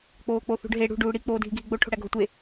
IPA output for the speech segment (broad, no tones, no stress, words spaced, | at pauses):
k͡poːk͡poθṳɖɦe ɽṳ ɖuːɽi k͡poːdʱiɡʱiɡ͡bo ʈʰo̤ɽæɡʱotʷe